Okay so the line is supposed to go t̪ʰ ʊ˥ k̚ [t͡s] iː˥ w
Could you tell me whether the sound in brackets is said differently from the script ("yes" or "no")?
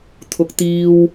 yes